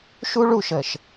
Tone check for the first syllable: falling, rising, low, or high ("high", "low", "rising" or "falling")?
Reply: high